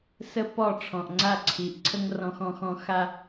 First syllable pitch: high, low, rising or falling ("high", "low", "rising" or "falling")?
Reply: high